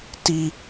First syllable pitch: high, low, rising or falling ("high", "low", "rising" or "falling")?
low